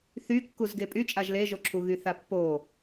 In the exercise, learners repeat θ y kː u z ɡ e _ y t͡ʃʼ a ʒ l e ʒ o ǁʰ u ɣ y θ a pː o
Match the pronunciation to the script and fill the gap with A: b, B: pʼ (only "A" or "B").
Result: B